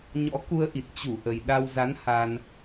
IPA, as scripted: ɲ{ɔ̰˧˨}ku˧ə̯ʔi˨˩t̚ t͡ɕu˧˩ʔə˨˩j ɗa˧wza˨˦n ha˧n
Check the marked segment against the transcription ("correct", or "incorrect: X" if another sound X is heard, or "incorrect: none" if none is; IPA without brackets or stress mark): incorrect: ɔ̰˧˥